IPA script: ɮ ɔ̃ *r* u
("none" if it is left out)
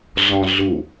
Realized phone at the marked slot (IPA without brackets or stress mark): ɮ